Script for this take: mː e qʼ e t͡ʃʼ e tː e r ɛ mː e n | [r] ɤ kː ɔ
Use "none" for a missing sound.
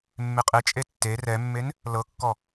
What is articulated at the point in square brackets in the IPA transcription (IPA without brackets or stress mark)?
l